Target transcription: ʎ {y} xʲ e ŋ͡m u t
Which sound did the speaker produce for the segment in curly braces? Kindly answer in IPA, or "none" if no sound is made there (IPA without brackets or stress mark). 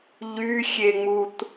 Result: y